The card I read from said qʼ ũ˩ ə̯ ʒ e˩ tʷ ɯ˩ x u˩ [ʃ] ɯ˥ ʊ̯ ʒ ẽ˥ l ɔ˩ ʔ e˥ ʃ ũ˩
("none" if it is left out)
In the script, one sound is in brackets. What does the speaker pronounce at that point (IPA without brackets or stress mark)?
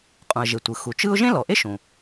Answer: t͡ʃ